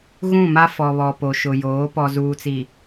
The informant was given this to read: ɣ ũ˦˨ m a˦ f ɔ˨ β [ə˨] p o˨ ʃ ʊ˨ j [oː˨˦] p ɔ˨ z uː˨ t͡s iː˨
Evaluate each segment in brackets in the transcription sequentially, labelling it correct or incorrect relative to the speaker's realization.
incorrect, correct

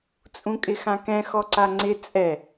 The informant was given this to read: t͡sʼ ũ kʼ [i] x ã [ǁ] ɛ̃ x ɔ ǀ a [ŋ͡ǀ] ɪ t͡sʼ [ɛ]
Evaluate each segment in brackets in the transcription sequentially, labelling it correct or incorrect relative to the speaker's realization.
incorrect, incorrect, correct, correct

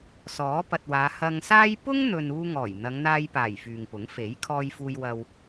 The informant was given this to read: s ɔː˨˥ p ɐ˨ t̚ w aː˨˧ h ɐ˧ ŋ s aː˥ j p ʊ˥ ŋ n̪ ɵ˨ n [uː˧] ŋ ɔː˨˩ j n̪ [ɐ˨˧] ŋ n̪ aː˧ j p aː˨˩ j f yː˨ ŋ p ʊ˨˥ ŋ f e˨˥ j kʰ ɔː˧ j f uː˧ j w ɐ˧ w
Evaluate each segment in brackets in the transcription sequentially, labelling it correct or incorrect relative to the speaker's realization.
correct, correct

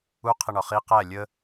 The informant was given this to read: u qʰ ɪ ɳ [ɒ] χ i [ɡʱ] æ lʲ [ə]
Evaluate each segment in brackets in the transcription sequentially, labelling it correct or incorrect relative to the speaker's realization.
correct, incorrect, correct

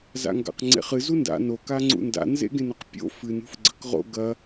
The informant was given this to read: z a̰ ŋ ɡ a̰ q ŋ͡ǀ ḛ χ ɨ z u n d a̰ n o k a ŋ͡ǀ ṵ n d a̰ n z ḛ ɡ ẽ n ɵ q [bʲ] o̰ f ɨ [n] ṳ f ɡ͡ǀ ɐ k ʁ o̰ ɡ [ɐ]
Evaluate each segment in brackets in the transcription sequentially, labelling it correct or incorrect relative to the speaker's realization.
incorrect, correct, correct

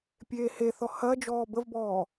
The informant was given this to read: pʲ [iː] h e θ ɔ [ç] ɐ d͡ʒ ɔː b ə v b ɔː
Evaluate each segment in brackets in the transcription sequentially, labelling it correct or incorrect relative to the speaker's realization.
incorrect, incorrect

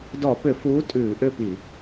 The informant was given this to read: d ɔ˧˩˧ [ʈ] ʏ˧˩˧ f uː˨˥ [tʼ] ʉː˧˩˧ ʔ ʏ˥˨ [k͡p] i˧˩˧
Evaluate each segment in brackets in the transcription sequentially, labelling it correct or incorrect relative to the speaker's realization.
incorrect, correct, incorrect

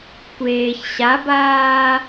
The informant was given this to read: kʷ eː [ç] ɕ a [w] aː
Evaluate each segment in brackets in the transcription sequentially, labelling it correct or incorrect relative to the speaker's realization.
correct, incorrect

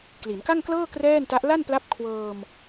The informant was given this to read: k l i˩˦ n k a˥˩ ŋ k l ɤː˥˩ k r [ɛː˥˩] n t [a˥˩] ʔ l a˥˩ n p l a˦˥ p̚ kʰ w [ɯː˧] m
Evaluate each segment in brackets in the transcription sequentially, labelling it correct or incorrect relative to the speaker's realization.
correct, incorrect, incorrect

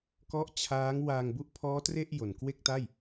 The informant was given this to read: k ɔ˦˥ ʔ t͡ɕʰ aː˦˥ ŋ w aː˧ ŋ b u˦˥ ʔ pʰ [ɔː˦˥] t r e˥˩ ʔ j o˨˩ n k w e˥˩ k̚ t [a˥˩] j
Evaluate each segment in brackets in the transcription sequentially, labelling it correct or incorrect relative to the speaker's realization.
correct, correct

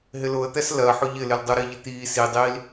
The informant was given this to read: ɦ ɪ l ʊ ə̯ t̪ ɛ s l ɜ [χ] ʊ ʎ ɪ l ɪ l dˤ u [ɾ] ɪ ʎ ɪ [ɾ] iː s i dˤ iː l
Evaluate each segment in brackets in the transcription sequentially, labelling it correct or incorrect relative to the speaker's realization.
incorrect, correct, incorrect

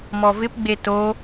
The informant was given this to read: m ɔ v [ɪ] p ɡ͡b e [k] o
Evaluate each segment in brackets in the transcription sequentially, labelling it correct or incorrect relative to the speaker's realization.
correct, incorrect

